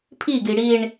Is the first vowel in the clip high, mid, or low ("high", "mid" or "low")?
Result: high